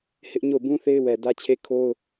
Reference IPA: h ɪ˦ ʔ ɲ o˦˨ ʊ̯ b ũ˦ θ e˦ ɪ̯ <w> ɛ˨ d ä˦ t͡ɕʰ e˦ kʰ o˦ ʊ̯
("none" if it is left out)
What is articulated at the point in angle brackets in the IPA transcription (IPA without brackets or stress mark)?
w